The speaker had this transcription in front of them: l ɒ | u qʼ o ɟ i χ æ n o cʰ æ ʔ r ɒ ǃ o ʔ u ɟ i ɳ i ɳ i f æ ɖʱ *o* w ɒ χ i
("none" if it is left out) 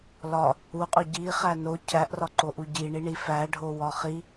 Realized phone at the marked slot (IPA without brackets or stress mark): o